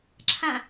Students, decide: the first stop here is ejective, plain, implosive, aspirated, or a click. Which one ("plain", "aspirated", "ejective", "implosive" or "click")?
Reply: click